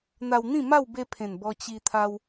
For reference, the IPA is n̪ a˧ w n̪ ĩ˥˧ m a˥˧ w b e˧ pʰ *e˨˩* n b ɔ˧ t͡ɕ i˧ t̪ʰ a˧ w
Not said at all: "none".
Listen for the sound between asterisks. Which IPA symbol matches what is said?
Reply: ẽ˨˩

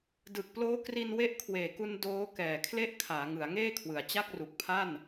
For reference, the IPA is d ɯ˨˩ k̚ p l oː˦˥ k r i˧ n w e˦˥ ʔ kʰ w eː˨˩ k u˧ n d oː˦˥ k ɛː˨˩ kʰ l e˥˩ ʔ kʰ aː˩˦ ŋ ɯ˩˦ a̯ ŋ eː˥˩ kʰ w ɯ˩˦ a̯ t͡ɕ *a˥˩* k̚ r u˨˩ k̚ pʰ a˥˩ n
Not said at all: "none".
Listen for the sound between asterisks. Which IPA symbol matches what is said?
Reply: a˥˩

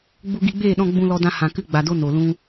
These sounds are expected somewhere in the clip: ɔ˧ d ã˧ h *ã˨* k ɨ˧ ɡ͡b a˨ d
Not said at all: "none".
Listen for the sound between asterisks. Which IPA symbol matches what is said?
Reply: ã˨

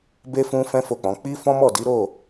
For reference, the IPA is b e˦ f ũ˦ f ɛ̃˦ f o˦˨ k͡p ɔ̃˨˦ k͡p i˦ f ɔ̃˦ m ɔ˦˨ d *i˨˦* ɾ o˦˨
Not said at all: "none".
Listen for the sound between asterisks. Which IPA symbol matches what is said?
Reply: i˨˦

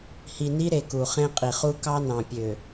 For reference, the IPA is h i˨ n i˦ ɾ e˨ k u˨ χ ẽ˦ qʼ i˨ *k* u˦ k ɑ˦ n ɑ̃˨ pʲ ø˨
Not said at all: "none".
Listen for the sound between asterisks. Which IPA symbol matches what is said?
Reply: χ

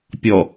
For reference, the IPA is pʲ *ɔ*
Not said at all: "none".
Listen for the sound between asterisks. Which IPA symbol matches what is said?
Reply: ɔ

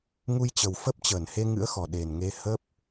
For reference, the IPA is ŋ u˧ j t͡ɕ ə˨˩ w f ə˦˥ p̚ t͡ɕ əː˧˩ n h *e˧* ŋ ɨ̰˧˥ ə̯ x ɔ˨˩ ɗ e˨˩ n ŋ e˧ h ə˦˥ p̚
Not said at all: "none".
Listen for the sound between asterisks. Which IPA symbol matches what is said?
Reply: e˧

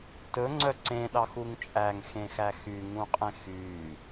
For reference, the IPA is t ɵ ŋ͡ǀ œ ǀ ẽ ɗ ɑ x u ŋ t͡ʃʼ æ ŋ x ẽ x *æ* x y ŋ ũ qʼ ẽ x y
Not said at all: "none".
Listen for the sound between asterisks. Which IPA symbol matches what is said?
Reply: æ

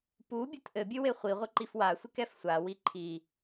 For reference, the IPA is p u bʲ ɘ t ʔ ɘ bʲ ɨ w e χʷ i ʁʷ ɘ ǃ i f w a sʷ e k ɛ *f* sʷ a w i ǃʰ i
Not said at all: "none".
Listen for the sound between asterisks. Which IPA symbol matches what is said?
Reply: f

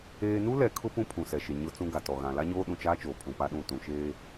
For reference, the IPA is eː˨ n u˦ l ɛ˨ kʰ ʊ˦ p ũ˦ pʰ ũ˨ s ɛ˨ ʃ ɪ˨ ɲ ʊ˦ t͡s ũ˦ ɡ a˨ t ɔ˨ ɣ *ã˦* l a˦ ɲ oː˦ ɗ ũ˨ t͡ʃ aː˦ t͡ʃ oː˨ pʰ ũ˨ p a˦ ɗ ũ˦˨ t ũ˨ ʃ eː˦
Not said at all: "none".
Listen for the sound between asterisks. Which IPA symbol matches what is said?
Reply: ã˨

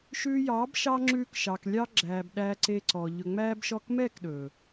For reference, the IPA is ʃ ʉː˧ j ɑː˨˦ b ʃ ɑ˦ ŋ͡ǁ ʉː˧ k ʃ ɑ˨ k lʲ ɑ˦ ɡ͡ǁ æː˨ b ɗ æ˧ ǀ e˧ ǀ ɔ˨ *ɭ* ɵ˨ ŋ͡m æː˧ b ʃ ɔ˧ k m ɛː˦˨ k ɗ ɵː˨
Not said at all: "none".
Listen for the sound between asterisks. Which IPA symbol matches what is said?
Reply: ʎ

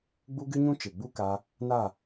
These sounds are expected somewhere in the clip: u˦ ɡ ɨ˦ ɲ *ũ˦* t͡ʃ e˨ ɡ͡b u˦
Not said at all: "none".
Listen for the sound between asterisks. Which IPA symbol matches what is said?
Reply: ũ˦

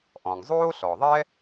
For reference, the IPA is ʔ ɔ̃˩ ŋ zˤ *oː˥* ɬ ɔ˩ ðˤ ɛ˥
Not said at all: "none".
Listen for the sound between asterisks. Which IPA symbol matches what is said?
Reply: oː˥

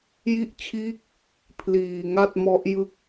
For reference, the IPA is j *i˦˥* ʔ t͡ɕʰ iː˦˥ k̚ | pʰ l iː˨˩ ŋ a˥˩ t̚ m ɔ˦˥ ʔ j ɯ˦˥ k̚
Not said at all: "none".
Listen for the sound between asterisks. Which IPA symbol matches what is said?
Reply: i˦˥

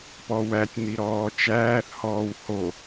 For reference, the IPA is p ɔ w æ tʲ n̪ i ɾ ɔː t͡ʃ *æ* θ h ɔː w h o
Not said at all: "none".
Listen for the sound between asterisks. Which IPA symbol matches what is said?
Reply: æː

